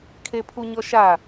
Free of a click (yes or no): yes